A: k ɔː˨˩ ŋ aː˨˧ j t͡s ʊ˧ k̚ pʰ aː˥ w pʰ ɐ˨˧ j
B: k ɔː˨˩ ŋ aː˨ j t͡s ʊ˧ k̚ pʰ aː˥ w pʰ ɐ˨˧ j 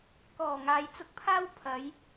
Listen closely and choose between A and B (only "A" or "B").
B